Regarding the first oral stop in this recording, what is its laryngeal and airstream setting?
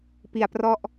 plain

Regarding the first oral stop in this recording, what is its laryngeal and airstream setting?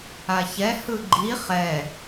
click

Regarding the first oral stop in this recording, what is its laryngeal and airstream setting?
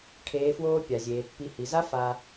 aspirated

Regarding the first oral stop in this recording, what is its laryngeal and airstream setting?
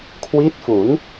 aspirated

